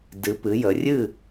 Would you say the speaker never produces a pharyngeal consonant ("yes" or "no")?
yes